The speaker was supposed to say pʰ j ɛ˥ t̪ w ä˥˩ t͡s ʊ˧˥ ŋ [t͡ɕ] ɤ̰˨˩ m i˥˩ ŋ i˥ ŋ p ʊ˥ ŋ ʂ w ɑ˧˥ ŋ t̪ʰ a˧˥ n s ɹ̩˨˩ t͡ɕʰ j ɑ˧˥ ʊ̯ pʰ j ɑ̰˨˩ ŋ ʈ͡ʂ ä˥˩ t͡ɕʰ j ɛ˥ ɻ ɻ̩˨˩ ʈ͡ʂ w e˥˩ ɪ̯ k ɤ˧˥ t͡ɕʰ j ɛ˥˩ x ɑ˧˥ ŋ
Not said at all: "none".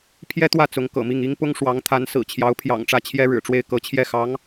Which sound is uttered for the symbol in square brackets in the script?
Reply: k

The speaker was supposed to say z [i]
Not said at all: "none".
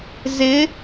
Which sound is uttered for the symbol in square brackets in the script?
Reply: ɪ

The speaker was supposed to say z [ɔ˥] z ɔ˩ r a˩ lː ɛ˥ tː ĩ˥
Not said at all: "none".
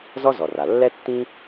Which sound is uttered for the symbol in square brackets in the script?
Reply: ɔ˥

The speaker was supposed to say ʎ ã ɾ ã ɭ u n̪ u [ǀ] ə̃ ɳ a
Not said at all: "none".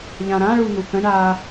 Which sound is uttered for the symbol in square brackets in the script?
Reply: k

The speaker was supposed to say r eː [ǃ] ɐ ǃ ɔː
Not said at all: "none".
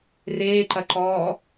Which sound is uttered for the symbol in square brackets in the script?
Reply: ǃ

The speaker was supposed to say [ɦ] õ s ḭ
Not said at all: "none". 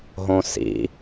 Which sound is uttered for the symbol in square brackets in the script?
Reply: ɦ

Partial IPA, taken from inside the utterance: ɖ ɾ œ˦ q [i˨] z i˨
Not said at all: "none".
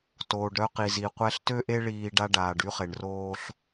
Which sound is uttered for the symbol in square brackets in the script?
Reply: i˨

